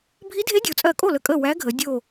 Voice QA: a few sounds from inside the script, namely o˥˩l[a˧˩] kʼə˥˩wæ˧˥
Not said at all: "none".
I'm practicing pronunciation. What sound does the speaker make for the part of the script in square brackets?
ə˧˩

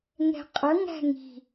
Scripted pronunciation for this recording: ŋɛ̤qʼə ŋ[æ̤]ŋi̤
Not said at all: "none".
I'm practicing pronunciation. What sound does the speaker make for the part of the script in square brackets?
æ̤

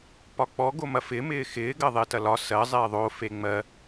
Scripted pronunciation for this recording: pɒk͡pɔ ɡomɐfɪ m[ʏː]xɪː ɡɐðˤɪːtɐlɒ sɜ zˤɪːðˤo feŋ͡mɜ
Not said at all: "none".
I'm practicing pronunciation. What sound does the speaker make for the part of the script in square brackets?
ɪː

